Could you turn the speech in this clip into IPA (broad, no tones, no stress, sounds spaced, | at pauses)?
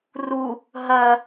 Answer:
r u | ɦ ɐ